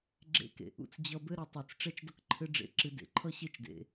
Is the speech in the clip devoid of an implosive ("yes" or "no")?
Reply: yes